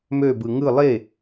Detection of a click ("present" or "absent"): absent